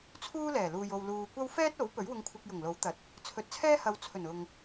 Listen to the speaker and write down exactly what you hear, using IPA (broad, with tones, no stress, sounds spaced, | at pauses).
t͡sʰ uː˥ l ɛː˨˩ l uː˨ j o˨ w l uː˨ kʷ ɐ˥ w f ɛː˥ t̚ o˨˥ w p ɵ˨˥ ɥ w ʊ˧ ŋ kʷʰ ɪ˧ k̚ j ʊ˨˩ ŋ l o˨˥ w t̪ ɐ˨ t̚ | t͡sʰ ɵ˨˥ t̚ t͡sʰ ɛː˥ h ɐ˨˧ w t͡sʰ ɵ˨˩ n ʊ˨ ŋ